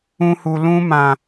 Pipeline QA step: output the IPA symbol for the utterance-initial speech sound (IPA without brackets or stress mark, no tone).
ũ